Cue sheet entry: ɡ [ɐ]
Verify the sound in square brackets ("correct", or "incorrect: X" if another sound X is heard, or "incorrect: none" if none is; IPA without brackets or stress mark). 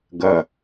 correct